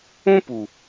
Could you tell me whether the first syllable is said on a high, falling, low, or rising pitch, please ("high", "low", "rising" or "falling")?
high